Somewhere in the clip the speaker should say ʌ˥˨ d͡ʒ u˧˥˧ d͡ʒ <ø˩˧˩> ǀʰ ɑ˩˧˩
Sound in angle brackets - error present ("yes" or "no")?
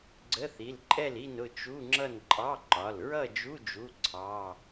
yes